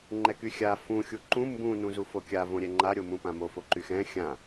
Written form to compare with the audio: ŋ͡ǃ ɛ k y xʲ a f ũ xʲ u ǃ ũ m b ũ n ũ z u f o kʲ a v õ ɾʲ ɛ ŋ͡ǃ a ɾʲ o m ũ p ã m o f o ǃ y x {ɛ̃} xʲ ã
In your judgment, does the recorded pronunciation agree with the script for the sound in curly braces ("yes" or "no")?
yes